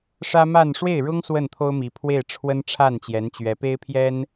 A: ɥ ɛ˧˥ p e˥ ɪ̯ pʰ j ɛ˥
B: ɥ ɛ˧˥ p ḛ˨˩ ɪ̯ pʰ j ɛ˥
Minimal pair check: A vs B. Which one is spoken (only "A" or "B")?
A